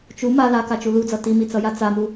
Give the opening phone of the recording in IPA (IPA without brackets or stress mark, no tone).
t͡ʃ